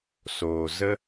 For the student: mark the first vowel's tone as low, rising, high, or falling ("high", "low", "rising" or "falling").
low